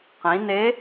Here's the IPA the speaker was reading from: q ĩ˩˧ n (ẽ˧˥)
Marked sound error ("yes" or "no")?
yes